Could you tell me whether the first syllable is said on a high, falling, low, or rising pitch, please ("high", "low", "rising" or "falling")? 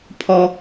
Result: high